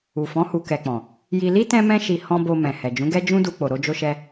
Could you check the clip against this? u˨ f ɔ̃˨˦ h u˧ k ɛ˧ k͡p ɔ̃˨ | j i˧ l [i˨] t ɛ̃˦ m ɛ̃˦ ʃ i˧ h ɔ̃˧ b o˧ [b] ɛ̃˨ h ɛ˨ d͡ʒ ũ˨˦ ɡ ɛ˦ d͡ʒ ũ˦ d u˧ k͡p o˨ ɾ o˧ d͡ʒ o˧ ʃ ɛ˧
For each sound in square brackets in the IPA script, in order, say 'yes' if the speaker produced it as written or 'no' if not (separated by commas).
no, no